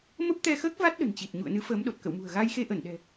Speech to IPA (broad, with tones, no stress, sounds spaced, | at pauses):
m ə˦˥ p̚ t̪ ɛ˧ x əː˦˥ k̚ v a˦˥ t̚ ɗ ə̤˨˩ n t͡ɕ i˨˩ t̚ ɲ ṵ˧˨ ə̯ n ɨ˨˦ f əː˨˦ m ɗ o˨˩ t̚ k ə̰˧˨ w m ṳ˨˩ ə̯ ɣ a˧ j x e˧ ʔ ə˧˩ n ɗ ɛ̤˨˩